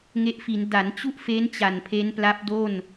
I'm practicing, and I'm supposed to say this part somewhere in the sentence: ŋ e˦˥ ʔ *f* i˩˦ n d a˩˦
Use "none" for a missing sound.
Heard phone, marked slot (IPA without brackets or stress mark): f